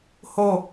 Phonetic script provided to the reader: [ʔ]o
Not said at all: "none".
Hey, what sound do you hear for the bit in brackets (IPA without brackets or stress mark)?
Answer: h